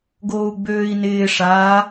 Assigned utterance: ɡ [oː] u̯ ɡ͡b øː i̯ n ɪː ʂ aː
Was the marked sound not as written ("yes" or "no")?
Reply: no